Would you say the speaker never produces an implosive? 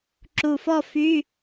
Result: yes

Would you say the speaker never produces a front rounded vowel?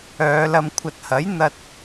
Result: no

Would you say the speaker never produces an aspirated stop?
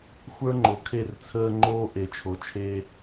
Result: no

